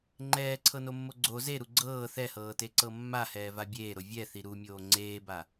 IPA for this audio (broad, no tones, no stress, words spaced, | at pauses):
ŋ͡ǃɛːǀʰɤnomːo ɡ͡ǀo zeɾu ɡ͡ǀɤː θɛhɤːteǀɤ mːahɛːva bʲeːɾo vʲɛθi ɾumʲoː ŋ͡ǀeːba